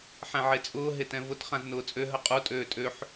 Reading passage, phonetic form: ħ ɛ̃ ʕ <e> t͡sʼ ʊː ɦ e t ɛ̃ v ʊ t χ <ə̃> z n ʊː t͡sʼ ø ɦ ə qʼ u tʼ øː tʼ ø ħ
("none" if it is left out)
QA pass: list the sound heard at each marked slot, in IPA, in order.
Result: e, ã

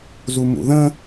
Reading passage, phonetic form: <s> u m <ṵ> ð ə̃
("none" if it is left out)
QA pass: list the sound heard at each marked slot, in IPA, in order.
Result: z, ṵ

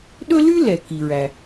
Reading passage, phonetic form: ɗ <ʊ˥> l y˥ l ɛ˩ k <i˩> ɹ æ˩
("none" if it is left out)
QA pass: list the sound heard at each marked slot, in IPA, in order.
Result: ɵ˥, i˩

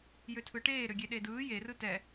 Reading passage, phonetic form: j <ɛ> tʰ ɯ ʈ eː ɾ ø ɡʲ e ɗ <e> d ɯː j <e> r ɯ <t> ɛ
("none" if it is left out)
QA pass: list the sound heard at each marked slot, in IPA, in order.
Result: ø, e, e, t

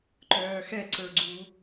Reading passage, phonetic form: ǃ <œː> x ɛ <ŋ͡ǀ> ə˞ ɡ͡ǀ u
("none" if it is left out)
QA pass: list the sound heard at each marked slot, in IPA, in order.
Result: œː, ǀ

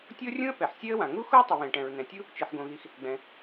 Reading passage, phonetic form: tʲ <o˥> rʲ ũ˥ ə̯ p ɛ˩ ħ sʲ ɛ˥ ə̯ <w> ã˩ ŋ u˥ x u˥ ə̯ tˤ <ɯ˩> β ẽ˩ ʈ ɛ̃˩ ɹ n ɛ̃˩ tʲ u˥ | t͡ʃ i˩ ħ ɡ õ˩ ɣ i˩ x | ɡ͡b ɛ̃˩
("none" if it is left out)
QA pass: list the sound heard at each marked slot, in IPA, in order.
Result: o˥, w, ʊ˩

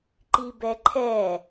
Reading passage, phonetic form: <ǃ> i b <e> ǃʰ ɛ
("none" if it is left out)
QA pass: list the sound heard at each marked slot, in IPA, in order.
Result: ǃ, ɛ

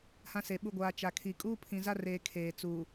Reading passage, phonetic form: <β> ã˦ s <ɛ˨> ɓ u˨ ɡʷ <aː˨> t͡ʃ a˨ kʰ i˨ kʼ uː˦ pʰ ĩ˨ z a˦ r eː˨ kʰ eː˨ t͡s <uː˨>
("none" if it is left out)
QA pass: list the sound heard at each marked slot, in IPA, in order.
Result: h, e˨, aː˨, uː˨

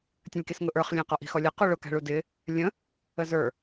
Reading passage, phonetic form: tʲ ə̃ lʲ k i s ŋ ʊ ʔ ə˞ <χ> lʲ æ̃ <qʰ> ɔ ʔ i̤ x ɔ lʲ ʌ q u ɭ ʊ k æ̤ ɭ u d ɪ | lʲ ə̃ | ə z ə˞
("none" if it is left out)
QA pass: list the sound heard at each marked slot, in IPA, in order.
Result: χ, q

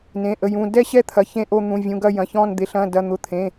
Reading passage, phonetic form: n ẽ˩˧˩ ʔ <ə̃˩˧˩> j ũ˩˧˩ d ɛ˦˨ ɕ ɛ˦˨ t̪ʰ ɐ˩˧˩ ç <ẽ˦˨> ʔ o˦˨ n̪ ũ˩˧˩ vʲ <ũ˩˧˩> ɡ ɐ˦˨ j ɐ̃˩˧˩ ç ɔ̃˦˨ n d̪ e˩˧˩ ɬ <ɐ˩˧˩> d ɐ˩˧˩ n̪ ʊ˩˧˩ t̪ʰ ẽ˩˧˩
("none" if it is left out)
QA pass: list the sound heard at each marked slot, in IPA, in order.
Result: ə˩˧˩, ẽ˦˨, ũ˩˧˩, ɐ̃˩˧˩

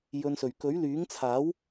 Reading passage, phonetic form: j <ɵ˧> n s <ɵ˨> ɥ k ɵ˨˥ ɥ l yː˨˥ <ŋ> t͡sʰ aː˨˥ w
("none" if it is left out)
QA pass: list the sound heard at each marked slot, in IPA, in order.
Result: ɵ˧, ɵ˨, ŋ

